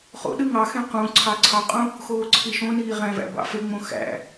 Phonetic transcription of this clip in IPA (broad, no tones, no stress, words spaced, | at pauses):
χo̰ɗɯ ŋɑxẽ qũ ǀʰɑǀʰɑqʼũ | xoːǀʰiʃõniː ʁæ̃væ̰ bɑ̰feŋ͡mõ xæ̰